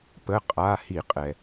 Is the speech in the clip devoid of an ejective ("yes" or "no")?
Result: no